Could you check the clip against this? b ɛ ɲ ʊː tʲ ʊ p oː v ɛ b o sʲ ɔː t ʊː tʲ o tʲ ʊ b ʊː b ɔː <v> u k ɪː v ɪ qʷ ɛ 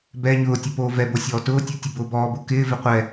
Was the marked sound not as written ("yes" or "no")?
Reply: yes